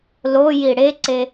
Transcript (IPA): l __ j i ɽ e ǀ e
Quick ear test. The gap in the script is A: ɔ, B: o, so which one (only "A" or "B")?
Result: B